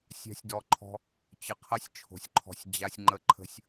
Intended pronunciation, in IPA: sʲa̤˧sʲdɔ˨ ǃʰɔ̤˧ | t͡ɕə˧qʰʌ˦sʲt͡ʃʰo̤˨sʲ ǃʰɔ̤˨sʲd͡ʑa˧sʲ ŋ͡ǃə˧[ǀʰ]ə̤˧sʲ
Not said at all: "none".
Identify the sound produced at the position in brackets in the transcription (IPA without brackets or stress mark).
ǃʰ